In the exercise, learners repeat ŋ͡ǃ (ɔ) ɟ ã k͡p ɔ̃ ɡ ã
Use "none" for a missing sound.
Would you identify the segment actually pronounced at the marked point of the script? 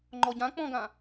ɔ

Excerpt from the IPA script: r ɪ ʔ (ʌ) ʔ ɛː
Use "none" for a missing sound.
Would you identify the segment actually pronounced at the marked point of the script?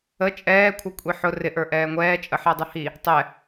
ə˞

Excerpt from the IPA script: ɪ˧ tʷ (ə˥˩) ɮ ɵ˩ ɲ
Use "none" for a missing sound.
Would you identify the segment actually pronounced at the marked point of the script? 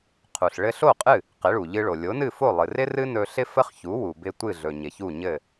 ɨ˥˩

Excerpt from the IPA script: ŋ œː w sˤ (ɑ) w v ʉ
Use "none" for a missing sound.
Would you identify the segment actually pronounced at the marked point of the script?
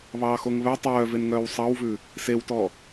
ɑ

